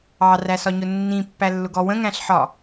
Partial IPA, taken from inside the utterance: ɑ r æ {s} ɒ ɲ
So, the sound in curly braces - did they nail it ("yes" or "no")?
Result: yes